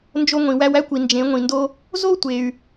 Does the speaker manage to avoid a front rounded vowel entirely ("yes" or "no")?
no